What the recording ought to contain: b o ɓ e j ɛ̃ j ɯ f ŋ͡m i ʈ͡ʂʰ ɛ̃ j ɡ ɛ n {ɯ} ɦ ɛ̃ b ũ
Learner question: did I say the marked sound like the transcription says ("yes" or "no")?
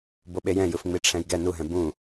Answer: no